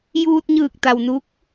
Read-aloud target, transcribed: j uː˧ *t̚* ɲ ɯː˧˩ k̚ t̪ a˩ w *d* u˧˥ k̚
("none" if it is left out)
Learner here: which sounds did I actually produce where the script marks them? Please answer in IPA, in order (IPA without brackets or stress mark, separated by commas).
t̚, n